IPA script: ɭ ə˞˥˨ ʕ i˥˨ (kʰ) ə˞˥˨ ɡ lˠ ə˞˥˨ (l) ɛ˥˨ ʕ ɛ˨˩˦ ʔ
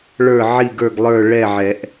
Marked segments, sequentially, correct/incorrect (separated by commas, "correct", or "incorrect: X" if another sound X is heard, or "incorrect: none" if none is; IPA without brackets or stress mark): incorrect: ɡ, incorrect: ɭ